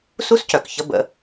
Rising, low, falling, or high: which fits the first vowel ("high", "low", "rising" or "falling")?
high